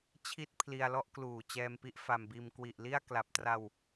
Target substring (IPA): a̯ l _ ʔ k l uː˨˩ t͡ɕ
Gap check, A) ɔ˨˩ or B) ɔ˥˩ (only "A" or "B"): B